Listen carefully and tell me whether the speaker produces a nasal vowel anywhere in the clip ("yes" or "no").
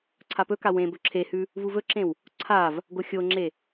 yes